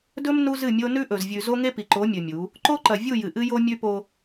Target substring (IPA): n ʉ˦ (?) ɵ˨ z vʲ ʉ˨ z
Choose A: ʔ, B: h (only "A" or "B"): A